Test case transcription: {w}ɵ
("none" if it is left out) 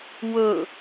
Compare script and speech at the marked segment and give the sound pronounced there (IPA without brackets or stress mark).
w